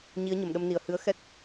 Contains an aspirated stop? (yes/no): no